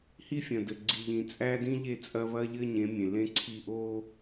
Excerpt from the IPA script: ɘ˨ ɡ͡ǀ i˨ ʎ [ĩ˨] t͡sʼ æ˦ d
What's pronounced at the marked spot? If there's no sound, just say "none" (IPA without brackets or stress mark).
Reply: ĩ˨